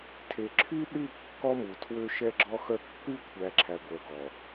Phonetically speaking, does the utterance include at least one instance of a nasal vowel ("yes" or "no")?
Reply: no